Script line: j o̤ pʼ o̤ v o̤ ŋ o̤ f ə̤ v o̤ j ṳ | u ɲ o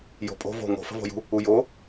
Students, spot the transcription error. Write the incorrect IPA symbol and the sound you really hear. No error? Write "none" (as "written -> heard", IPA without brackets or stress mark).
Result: ɲ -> j